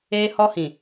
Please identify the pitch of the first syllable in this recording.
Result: high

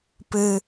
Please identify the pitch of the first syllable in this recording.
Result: low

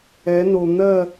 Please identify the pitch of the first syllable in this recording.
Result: rising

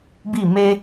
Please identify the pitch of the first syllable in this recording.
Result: falling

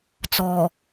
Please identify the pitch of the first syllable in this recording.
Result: low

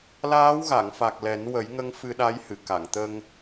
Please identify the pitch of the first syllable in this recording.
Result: rising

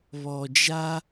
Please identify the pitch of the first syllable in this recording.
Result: low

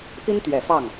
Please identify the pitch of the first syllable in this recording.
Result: high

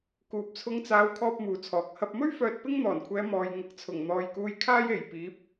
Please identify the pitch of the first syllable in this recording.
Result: low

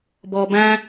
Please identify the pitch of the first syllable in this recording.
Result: low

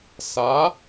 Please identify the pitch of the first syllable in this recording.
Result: rising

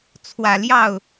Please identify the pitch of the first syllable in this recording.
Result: low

